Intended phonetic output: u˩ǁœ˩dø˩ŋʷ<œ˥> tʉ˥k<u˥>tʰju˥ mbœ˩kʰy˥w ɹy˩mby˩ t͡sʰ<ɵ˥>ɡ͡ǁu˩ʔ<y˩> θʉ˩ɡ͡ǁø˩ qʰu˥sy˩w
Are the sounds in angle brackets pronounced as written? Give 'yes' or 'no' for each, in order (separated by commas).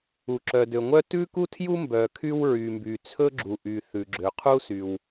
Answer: yes, yes, yes, yes